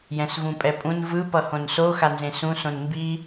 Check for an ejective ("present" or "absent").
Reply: present